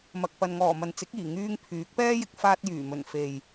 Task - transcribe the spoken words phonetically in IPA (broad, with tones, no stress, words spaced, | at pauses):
mɐ˨k̚pɐ˨nŋɔː˨˩ mɐ˨nt͡sɪ˨˥k̚iː˨˩ ŋyː˧ŋ pʰyː˨˥k̚pɛː˥jɪ˨˥k̚ faː˧t̚jyː˨˩mɵ˨˩n fe˨j